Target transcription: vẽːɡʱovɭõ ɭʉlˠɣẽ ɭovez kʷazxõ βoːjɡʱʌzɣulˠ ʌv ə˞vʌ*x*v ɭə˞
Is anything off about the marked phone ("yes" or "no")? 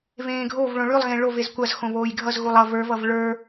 yes